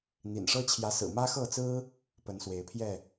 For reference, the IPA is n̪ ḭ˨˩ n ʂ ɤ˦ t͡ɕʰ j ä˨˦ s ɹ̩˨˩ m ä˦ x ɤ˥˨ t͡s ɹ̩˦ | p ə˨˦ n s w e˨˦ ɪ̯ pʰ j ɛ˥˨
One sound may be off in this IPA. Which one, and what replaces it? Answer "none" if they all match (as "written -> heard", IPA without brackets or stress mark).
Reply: none